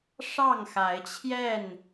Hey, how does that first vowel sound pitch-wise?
falling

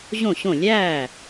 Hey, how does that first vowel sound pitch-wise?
falling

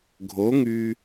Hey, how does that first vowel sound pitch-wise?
rising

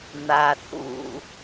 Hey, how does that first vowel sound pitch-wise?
low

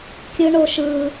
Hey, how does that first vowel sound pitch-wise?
high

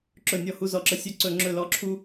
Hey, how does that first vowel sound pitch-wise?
falling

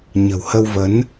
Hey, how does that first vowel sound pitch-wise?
low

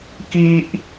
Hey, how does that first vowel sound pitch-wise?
high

